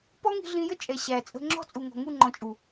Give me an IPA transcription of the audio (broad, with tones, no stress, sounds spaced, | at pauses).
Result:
p ɔ˦ ŋ i̤˧ ɮ ĩ˧ j ə˦ t͡ʃʼ ɛ˨ ɕ æ˨ t͡sʼ ə̤˧ ŋ͡ǁ ɔ̤˦˨ t͡sʼ u˨ ŋ ɔ̤˨ ŋ u˦˨ ŋ͡ǃ ɔ̃˨ t͡ʃʼ u˨